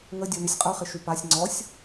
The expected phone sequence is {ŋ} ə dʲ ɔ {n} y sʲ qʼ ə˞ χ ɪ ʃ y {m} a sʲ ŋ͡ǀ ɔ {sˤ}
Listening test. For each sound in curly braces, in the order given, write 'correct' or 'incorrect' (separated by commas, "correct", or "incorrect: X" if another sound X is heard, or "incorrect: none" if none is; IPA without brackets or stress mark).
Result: correct, correct, incorrect: p, incorrect: sʲ